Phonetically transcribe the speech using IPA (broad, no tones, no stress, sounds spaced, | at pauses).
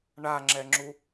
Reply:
ɳ a ŋ͡ǁ ɛ ŋ͡ǁ u